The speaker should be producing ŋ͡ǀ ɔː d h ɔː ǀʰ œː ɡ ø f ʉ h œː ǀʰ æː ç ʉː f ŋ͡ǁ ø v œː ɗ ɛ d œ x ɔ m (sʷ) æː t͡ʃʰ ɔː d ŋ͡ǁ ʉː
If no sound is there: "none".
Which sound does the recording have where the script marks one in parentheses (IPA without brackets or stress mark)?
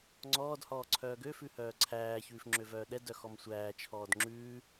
sʷ